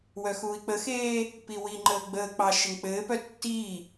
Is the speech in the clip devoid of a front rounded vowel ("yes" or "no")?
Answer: no